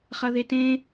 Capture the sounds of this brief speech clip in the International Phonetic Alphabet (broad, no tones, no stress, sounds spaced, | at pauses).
χ ɐ ð e t ẽ